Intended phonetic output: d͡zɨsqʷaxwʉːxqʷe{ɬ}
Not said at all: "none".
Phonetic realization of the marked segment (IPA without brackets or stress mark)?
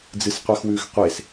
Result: s